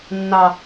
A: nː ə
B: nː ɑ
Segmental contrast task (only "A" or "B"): B